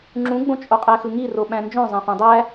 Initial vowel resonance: nasal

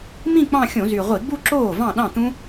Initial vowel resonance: nasal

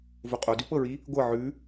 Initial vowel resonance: oral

